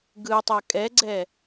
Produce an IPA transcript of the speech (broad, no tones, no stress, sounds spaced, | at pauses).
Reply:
ɡ ɯ tˤ ɤ kʼ ɛ ɡ͡ǀ ɛ